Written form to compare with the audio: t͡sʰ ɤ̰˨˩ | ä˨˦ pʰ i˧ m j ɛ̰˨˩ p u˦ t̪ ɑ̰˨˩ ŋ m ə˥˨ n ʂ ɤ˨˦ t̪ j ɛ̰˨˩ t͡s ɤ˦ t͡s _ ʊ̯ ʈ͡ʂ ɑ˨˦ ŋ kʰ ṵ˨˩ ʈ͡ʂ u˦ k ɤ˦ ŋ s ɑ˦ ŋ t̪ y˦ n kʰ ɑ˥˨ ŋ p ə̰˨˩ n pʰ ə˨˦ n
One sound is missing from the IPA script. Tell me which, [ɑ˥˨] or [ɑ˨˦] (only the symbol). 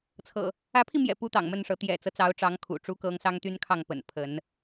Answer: ɑ˨˦